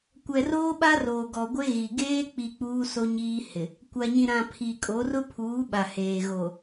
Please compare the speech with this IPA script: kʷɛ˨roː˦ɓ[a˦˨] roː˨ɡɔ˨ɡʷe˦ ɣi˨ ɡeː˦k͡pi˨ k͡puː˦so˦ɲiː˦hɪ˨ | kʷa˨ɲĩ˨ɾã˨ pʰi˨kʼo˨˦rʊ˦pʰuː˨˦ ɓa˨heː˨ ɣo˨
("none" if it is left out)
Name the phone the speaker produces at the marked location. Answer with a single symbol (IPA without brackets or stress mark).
a˦